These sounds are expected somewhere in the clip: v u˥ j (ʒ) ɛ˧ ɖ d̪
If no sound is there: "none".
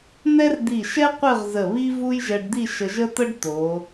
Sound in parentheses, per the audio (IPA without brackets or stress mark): ʒ